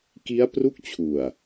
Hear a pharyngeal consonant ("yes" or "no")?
no